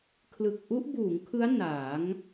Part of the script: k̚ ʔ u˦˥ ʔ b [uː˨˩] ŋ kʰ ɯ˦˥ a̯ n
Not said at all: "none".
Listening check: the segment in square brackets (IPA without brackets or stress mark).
uː˩˦